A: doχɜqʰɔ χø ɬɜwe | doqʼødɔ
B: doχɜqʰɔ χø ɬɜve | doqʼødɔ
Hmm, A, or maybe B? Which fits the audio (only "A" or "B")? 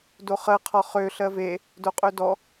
B